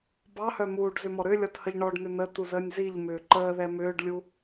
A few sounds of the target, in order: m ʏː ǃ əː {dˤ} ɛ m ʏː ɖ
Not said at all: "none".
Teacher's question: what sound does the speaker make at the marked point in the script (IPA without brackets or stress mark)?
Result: ð